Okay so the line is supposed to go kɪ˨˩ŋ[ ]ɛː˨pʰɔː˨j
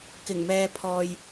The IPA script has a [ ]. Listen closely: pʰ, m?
m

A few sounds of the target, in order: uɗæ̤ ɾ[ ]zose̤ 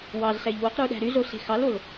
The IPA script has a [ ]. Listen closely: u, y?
y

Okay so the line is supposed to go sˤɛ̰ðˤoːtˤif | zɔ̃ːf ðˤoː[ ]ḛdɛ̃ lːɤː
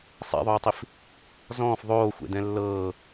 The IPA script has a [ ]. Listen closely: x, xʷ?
xʷ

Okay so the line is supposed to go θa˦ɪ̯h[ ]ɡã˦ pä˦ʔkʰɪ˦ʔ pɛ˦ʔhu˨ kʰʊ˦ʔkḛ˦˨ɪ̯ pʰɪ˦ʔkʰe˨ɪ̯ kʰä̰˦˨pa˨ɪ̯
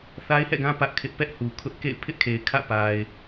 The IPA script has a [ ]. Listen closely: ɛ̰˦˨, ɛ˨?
ɛ̰˦˨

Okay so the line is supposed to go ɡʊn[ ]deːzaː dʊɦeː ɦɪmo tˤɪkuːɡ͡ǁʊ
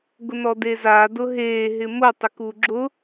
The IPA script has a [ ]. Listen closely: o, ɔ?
ɔ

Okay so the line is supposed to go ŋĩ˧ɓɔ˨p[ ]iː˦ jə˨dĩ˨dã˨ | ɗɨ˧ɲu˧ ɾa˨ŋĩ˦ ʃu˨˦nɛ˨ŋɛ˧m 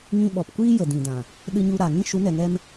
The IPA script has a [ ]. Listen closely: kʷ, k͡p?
kʷ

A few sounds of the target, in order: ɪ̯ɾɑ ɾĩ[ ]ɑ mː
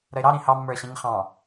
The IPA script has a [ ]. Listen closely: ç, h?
h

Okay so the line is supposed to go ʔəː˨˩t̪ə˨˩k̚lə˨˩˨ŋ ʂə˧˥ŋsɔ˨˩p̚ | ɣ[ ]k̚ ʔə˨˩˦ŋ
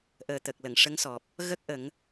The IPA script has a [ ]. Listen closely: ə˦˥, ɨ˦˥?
ə˦˥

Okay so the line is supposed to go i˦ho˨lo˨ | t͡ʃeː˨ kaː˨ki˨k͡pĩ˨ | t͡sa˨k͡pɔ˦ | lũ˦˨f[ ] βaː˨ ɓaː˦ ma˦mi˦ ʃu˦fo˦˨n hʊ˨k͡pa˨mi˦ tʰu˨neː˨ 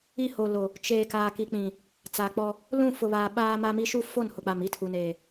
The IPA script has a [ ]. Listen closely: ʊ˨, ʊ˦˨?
ʊ˨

